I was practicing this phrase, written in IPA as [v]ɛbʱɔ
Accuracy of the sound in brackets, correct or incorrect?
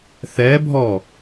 incorrect